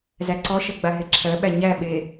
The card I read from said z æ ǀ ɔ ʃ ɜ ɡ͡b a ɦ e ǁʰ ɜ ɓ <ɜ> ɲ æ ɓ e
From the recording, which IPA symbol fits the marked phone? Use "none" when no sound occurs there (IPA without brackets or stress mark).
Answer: æ